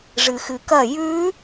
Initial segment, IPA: ʐ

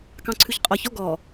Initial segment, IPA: k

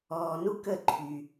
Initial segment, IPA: ɔː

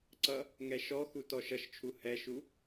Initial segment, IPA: ǀ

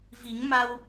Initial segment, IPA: v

